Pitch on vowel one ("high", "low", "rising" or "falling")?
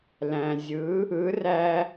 low